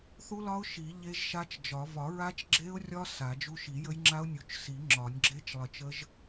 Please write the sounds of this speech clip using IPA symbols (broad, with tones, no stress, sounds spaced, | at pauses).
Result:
θ u˦˥ l ɒ˦˥ ʊ̯ ʃ i˨˩˦ ʎ e˦˥ ʒ ʃ a˦˥ t͡ʃ d͡ʒ ɒ˨˩˦ v ɒ˨˩˦ ɹ a˦˥ t͡ʃ ɡ͡ǁ e˦˥ ʊ̯ rʲ ɒ˦˥ s a˨˩˦ d͡ʒ u˦˥ ʃ i˨˩˦ j ə˦˥ j ŋ͡ǁ a˦˥ ʊ̯ nʲ u˨˩˦ t͡ʃ s i˨˩˦ ŋ͡ǁ ɒ˨˩˦ nʲ ɡ͡ǁ e˦˥ t͡ʃ lˠ ə˨˩˦ t͡ʃ ə˦˥ ʒ